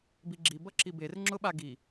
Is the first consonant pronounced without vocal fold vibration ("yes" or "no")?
no